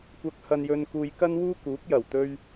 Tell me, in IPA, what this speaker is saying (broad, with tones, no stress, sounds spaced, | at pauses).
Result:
kʷ ɐ˥ k̚ h ɐ˥ n j ɵ˥ n k uː˥ j k ɐ˥ n w uː˥ k uː˨˥ k̚ j ɐ˨˩ w t̪ ɵ˥ ɥ